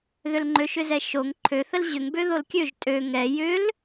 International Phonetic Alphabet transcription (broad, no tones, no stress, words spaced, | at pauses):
ðʏlŋ͡ǃøʃʏzɛ ʃoŋ ǃʰøθəl ʑʏŋbø ðolkʲøʒ tʼø ŋɛ jʏl